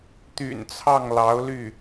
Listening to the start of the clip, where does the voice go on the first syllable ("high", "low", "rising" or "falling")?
low